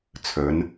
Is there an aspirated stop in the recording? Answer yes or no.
yes